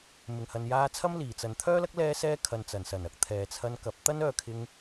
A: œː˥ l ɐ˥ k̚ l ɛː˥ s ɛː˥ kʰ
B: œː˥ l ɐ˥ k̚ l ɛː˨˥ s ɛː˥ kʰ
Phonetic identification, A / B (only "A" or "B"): A